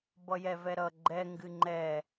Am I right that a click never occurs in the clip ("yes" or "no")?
no